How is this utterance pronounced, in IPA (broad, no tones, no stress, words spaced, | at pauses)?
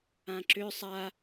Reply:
ãǁʏ sˤa